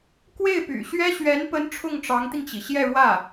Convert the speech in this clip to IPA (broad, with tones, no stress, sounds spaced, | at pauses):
k w e˥˩ ɪ̯ p y̰˨˩ ɕ ɥ ɛ˥ ɕ ɥ ɛ˧˥ n p ə˧˥ n ʈ͡ʂʰ ʊ˥˩ ŋ ʈ͡ʂ ɑ˧˥ ŋ t̪ i˧ ŋ t͡ɕ i˩ ɕ j ɛ˥˧ ɻ w ä˥˩